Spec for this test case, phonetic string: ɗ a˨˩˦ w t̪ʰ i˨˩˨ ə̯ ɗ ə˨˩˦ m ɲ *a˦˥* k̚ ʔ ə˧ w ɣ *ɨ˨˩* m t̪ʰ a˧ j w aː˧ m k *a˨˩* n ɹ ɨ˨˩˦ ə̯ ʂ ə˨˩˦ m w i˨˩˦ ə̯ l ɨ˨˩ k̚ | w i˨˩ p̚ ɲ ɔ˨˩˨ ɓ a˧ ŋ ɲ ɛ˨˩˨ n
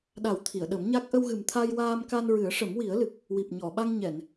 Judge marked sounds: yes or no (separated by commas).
yes, yes, no